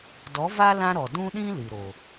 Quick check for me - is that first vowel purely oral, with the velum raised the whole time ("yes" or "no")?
yes